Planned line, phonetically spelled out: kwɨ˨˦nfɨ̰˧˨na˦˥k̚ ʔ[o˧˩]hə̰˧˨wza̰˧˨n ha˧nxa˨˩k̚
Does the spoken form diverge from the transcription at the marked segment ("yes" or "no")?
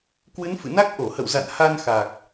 no